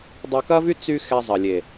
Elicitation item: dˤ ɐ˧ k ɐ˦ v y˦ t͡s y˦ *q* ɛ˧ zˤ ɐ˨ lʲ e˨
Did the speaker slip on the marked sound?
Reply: yes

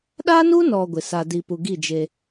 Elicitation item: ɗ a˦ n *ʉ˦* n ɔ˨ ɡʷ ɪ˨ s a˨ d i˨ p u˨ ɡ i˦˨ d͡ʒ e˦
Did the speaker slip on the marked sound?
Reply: yes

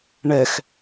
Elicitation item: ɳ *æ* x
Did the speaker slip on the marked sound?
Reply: yes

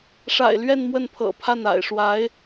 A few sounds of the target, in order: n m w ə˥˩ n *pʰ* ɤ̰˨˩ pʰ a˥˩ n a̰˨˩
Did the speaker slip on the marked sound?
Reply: no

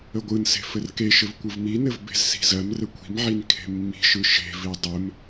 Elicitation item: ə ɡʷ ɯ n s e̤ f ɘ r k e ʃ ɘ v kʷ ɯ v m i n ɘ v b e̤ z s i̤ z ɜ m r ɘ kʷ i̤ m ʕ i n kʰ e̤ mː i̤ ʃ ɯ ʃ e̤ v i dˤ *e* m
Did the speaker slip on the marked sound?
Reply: yes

